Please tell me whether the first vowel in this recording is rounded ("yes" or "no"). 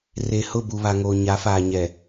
no